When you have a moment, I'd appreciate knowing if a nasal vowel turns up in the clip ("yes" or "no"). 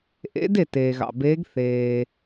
no